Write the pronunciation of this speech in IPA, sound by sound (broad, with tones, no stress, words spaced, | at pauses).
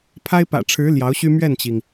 pʰa˥ɪ̯pä̰˨˩ʈ͡ʂʰɻ̩˧˥ ljɑ˧˥ʊ̯ɕy˥ mɥɛ˥˩nt͡ɕi˩ŋ